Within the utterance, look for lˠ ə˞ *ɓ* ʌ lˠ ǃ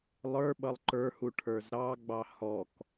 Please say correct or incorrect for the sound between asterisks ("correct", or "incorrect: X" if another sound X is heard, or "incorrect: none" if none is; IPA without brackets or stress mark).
correct